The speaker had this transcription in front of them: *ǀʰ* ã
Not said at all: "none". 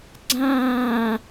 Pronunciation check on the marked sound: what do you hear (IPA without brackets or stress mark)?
ɡ͡ǀ